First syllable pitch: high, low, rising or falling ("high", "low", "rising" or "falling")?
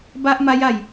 high